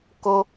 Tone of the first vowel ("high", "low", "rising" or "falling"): low